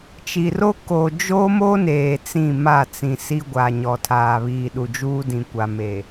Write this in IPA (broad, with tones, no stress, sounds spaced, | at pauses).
t͡ʃ i˨ r o˦ k o˨ d͡ʒ o˦ m o˦ n eː˨ t͡s ĩ˦˨ m a˦˨ t͡s ĩ˨ s i˦ ɡʷ a˨ ɲ ɔ˨ tʰ aː˨ β iː˨ ɗ u˨ d͡ʒ uː˦ d ĩ˨ kʷ a˨ m e˨